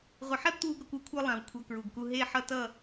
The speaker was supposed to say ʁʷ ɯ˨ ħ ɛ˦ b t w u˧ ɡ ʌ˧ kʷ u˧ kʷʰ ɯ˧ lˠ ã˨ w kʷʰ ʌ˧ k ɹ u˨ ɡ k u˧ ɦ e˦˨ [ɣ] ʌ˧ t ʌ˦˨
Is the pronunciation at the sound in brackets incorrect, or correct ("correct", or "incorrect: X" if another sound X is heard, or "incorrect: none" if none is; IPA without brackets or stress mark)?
incorrect: ħ